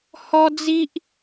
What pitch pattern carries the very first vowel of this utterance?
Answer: high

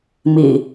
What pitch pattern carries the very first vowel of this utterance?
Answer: low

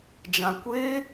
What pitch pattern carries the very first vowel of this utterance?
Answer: low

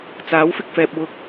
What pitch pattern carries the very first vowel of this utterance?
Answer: rising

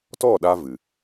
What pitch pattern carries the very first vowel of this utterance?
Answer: falling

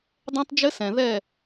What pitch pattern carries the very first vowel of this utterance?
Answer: high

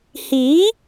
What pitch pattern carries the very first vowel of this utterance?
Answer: rising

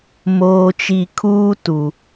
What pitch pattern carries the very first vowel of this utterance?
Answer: low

